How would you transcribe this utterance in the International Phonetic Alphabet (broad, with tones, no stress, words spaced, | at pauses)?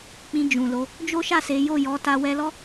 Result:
k͡pĩ˧d͡ʒũ˨lo˨˦ | d͡ʒo˦ʃa˦˨ se˨˦ jo˦˨jɔ˨˦ta˧ wɛ˧lɔ˦